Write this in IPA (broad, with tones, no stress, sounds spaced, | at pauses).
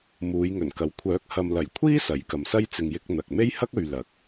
m uː˨˧ j ŋ ɵ˨˩ n k ɐ˨˥ w kʷʰ œː˨˥ k̚ h ɐ˨ m l ɐ˨˩ j kʷʰ iː˥ s ɐ˨˥ j k ɐ˨ m s ɐ˥ j t͡s ɪ˨ ŋ j ɪ˧ k̚ n̪ ɐ˨ k̚ m e˥ j h ɐ˥ k̚ ɵ˨ ɥ l ɐ˨˥ k̚